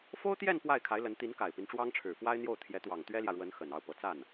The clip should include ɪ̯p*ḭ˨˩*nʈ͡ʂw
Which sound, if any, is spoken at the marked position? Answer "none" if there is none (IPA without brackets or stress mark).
i˦